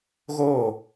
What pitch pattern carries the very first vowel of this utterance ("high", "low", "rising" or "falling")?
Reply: falling